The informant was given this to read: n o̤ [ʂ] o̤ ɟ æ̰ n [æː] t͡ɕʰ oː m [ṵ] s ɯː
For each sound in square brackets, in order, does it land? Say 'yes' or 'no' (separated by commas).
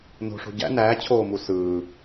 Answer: yes, yes, no